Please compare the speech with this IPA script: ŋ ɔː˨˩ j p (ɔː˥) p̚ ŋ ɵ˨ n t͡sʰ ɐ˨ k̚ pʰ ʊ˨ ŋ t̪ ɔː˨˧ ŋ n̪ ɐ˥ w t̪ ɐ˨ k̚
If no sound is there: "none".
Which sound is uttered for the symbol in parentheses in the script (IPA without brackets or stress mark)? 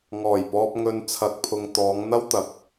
ɔː˨